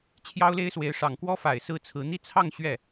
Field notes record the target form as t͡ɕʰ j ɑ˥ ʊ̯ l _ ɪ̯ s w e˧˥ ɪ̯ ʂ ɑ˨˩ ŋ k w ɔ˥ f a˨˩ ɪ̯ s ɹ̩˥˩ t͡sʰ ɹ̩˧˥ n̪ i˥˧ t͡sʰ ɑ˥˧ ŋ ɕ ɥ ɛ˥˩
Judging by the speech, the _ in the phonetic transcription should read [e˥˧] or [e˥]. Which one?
e˥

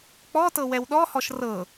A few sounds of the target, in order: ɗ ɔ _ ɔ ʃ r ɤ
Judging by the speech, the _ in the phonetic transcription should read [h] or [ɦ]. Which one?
h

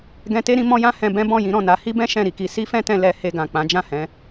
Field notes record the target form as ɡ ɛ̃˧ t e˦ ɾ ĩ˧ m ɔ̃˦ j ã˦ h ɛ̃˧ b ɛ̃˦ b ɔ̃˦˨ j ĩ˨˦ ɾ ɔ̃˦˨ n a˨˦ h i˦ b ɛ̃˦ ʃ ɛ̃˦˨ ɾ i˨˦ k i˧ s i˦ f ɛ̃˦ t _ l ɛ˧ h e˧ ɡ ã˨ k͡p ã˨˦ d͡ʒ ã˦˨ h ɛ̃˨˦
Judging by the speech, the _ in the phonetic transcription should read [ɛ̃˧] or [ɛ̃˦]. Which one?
ɛ̃˧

